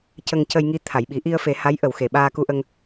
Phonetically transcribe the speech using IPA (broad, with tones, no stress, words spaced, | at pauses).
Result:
cə˧ŋcə˧jŋi˧ t̪ʰa˨˩˨jɓi˨˩˦ ʔi˧ə̯fe˨˩˦ ha˧˥jʔə˨˩˨wxe˨˩˨ ɓaː˧ku˧ʔə˧ŋ